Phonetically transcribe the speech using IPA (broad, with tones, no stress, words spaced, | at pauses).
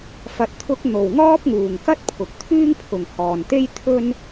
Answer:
fɐ˨t̚t̪ʰʊ˧k̚ n̪o˨wŋɔː˥p̚ŋuː˨ŋkɐ˥t̚ pʰʊ˨k̚t̪ʰyː˥ŋpʰʊ˨ŋ hɔː˨nt̪e˥j t̪ʰɵ˥n